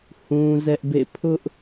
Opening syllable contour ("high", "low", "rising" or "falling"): high